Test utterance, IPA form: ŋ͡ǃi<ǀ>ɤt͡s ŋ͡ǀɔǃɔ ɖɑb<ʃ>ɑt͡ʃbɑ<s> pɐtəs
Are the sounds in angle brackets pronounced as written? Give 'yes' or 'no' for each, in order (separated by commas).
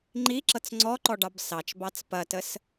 no, no, no